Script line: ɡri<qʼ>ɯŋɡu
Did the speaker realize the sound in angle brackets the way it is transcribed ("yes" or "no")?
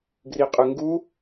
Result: yes